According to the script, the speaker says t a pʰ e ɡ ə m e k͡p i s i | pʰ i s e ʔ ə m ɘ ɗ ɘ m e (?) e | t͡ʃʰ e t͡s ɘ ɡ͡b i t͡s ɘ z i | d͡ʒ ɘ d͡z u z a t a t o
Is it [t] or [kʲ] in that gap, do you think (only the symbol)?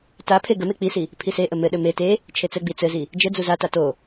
t